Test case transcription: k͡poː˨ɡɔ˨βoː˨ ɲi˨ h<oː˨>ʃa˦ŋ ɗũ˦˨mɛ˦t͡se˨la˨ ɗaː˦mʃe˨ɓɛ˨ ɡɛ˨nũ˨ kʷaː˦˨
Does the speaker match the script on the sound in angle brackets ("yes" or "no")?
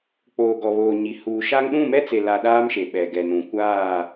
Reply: no